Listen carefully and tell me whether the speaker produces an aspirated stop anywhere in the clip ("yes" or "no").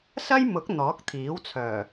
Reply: yes